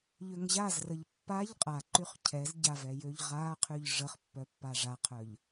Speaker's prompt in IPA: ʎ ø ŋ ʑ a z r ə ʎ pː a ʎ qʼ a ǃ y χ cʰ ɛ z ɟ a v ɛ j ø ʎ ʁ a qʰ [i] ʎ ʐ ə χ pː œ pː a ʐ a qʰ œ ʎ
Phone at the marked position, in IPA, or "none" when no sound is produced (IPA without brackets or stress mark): y